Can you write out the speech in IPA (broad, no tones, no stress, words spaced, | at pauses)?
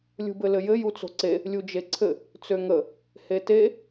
lʲṳbɘlɘjɘ jut͡so̤ǀe | lʲud͡ʒeǀʰɘ | t͡søŋə | hete